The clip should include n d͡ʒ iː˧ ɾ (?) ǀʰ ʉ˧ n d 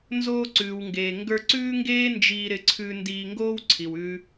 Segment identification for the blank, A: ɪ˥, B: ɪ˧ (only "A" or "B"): B